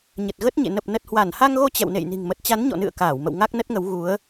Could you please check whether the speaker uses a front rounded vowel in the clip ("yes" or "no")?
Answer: no